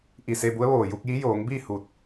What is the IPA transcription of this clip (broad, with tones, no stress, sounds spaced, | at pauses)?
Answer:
ʔ i˧˩ s e˧ b u˧˥ ə̯ ʋ oː˧˩ j u˧ k̚ j i˧˥ j oː˩˧ ŋ b iː˥˨ h u˧˩ t̚